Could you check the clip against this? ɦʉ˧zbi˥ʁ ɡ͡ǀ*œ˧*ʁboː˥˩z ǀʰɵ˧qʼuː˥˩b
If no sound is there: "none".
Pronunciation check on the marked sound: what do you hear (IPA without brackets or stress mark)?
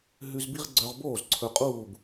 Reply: œ˧